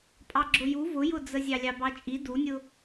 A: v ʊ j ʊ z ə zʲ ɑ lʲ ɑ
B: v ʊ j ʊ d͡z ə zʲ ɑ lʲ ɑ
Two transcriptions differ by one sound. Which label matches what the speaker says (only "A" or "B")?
B